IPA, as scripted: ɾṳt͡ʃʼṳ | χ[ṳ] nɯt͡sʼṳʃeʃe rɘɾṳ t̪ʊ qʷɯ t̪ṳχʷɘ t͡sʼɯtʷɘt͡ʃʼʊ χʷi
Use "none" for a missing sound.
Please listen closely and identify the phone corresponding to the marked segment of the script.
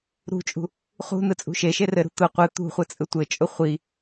ṳ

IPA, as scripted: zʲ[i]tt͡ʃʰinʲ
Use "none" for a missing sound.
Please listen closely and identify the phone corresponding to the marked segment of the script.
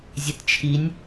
e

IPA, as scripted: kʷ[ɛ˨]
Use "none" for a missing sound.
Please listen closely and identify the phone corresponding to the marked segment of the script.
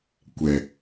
ɛ˨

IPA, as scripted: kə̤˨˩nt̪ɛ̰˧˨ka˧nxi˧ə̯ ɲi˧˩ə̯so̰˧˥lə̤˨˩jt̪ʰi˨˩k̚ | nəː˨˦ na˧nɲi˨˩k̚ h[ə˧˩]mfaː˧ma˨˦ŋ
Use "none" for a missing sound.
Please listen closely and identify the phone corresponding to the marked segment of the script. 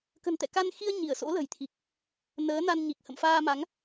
ə̰˧˨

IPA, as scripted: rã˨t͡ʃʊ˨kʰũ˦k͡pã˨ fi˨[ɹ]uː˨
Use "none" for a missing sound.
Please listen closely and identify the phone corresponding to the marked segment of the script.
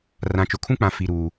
ɾ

